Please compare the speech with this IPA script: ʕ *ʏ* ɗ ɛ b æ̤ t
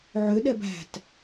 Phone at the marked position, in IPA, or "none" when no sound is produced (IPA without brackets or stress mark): ʏ